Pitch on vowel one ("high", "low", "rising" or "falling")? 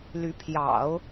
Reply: rising